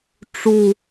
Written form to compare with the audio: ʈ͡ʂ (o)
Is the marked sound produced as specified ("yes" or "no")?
no